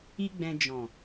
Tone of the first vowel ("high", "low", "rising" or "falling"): high